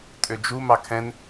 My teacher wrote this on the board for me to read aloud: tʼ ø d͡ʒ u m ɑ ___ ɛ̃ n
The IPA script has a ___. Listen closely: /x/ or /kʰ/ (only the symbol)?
kʰ